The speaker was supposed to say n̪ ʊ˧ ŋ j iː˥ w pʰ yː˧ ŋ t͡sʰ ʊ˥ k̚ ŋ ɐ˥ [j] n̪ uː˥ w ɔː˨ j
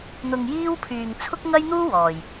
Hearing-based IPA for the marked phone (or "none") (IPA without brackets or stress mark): j